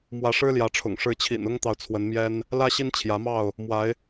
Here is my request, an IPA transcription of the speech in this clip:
m w ä˨˦ ʂ ɻ̩˦ l j ä˨˦ ʈ͡ʂʰ ʊ̰˨˩ ŋ ʂ ɻ̩˨˦ t͡ɕʰ ḭ˨˩ n ʊ˦ ŋ t̪ ɑ˨ ʊ̯ t͡sʰ w ə˨˦ n m j ɛ˦ n | l ä˦ ɕ i˦ n t͡ɕʰ j ä˨˦ m ɑ˥˨ ʊ̯ | m w a˨˦ ɪ̯

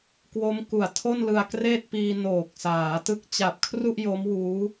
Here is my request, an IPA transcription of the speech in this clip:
k w o˦˥ m k u˨˩ a̯ tʰ o˥˩ n l ɯ˧ a̯ k r eː˥˩ t̚ p iː˧ n oː˨˩ k̚ s aː˩˦ t ɯ˦˥ k̚ t͡ɕ a˨˩ p̚ kʰ r u˥˩ ʔ j o˦˥ m w uː˦˥

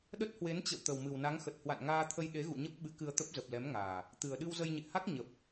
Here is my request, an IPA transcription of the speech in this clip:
ɗ ə˦˥ t̚ h w e˨˦ n t͡ɕ ə̰˧˨ w t̪ ə˨˩ w m ɨ˨˩ w n a˨˦ ŋ x ə˨˩ t̚ h w a̰˧˨ n ŋ aː˧ t̪ʰ ə˧ j ɗ e˨˦ ɣ ṵ˧˨ ɲ ə˦˥ p̚ ɓ ɨ˨˦ k ɨ˧ ə̯ t̪ ə˦˥ p̚ z ə˨˩ p̚ l ɛ˨˦ m ŋ aː˨˩ | t̪ ɨ˨˩ ə̯ ɗ ɨ˧ w z ə˧ j ɲ ḛ˧˨ h a˦˥ k̚ ɲ ə˨˩ p̚

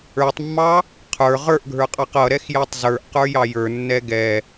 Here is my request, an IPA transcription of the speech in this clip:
ə˞ tˤ mː ɑ | qʰ ə˞ ʁ ə˞ ʔ ɡʱ ə˞ qʼ ɑ q ʌ ɾ ɛ x j æ tˤ z ə˞ ʔ q ə˞ j ɑ j ə˞ nː ɛ ɡ ɛ

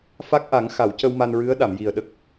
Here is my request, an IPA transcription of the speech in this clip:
f a˦˥ k̚ ʔ a˨˩˦ ŋ x a˨˩˨ w c ə˧ w m a˧ n ɹ ɨ˧˥ ə̯ ɗ a˨˩˨ m j i˨˩ ə̯ ɗ ə˦˥ k̚

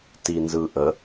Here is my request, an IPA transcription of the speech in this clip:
t i n z ɯ ʔ ə

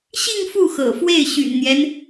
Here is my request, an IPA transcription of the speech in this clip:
ɕ i˥˧ ŋ f u˥˩ x ɤ̰˨˩ f w e˥˩ ɪ̯ ɕ y̰˨˩ n n̪ j ɛ˦ n

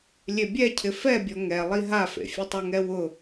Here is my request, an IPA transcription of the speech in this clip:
lʲ e bʲ ɛ cʰ ɪ f ɛ bʲ ɔ ŋ ɛ lˠ i ɦ a f ḛ fʲ ʊ tˤ ʊ ŋ ɛ w ʊ

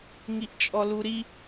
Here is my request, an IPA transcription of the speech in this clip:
ŋ i ʔ t͡ʃʼ ɔ l u ɾ i

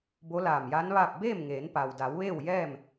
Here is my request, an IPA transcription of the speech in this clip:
b o˧˥ l aː˧˩ m j a˧˥ n ʋ aː˥˨ p̚ b eː˥˨ m ŋ eː˩˧ n p a˩ w d a˩˧ w ʋ eː˥˨ w j ɛː˥˨ m

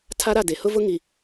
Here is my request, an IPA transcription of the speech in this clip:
tʰ a˦ ɾ a˦˨ d e˨ h ʊ˦ v ʊ˦ ŋ i˨

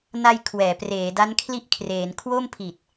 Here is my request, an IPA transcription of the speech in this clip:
n a˧ j kʰ w ɛː˩˦ p r eː˩˦ d a˦˥ n kʰ l i˥˩ ʔ kʰ r eː˩˦ n kʰ w o˥˩ m pʰ i˨˩ t̚

